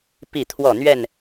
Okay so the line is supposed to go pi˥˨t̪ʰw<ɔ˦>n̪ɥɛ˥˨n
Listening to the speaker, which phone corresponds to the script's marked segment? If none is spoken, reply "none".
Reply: ɔ˥˨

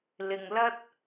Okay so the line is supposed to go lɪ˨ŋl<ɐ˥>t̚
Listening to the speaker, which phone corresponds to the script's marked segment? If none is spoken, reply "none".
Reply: ɐ˥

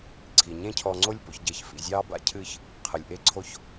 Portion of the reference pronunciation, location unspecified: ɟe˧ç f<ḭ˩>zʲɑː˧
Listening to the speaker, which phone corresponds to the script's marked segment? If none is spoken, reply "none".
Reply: ḭ˩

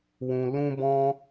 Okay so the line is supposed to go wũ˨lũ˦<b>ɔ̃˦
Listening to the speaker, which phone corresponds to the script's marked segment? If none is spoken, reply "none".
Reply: b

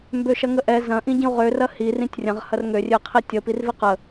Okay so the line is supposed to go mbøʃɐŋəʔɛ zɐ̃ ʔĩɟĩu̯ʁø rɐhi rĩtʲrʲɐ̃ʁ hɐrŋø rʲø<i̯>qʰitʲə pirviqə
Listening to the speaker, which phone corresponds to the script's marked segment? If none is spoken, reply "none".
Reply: i̯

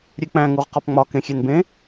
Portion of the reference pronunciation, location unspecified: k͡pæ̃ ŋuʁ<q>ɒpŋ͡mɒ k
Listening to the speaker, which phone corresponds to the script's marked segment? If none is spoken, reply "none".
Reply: q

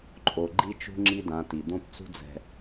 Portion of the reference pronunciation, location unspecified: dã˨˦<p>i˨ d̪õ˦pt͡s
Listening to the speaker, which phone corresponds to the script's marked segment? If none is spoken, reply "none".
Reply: t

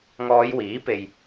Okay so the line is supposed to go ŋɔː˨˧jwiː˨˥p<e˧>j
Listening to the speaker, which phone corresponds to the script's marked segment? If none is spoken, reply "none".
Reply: e˧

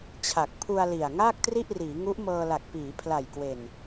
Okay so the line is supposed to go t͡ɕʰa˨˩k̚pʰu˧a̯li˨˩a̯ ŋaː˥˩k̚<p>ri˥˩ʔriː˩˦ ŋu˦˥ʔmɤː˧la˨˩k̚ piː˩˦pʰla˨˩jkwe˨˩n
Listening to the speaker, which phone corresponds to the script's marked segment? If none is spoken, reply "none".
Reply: t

